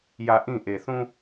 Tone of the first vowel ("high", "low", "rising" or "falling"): low